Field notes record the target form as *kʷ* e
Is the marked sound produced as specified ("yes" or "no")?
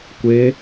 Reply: yes